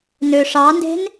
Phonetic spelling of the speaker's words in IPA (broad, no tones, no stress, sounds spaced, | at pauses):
n ø ʂ ɑ n d e̤ n